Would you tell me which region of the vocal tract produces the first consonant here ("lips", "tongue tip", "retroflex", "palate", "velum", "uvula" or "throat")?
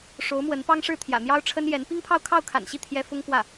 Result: retroflex